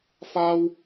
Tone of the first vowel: high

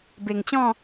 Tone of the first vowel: low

